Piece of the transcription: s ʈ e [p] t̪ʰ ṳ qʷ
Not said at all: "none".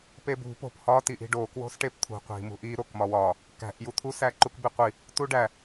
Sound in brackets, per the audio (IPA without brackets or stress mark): p